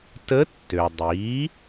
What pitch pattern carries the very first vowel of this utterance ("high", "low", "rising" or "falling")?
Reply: rising